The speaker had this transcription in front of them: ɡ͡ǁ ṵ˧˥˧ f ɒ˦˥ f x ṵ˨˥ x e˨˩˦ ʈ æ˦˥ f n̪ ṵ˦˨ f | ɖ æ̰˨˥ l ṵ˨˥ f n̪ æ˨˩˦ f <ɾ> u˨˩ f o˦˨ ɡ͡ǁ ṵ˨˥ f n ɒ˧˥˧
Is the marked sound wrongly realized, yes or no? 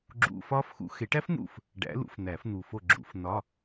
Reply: yes